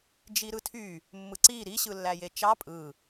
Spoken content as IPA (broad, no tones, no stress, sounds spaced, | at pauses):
d͡ʒ i ɾ ɯ tʰ y | mː ɯ ǀ i ɾ i ɕ ɯ lː æ j e t͡ʃ ɑ pʼ ɯ